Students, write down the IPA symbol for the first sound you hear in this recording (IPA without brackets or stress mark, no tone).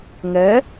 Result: ŋ